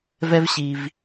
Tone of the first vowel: high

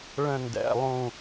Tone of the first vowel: falling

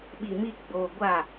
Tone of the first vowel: low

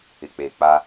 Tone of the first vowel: low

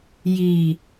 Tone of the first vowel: low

